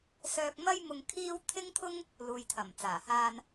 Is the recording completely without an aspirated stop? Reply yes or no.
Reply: no